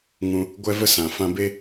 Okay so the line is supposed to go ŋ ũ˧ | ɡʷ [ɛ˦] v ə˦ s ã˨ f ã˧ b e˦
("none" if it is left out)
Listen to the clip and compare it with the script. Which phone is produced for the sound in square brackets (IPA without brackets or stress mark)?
ɛ˦